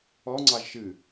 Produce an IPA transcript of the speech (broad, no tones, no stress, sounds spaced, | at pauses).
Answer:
ɔ ŋ͡ǀ ɑ ʒ ʃ ɨ